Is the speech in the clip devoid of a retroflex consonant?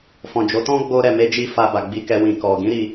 yes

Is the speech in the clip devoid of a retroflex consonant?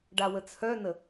no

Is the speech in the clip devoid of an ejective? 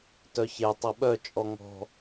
no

